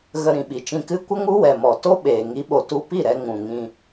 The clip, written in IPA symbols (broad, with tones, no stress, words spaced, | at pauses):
ɣə˧ ɾĩ˨ɓi˨t͡ʃĩ˧ kɨ˦ kʷə˦ŋu˦wɛ˨mɔ˨ to˦ ɓeː˨ ŋi˨˦ɓo˨ tu˧pi˦˨ɾɛ˧ ŋũ˨ŋĩ˧